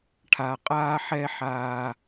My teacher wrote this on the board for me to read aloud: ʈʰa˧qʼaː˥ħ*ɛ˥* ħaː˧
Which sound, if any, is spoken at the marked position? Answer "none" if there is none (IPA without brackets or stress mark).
ɛ˥